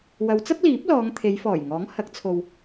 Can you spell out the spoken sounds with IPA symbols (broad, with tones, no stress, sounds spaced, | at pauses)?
w ɐ˨˧ w t͡s ɐ˥ p̚ l iː˨˥ p̚ l ɔː˨˧ ŋ t̪ʰ e˨˧ j f ɔː˨˩ j ŋ ɔː˨˥ ŋ h ɐ˨˥ k̚ t͡sʰ o˨ w